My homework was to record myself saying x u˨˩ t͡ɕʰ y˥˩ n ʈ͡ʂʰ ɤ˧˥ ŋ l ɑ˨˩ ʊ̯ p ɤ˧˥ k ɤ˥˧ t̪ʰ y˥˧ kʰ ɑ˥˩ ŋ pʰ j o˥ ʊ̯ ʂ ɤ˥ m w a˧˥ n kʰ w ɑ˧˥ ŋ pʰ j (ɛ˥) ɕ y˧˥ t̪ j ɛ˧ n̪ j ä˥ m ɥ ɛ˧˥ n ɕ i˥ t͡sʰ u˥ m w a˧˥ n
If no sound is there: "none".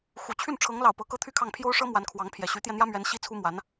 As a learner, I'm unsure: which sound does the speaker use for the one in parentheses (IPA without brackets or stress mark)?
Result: ɛ˨˩